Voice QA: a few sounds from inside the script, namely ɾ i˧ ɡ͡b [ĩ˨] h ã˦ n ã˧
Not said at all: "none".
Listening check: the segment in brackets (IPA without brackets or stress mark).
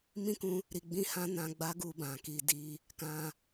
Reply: ĩ˦